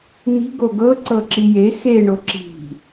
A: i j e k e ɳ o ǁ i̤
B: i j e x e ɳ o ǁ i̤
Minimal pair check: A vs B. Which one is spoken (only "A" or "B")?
B